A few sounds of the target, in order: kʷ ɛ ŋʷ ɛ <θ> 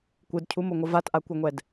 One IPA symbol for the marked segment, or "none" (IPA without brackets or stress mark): d